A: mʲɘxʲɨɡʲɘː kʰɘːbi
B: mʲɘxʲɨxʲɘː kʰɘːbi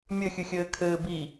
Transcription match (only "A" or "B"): B